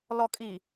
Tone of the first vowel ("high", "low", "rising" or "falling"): low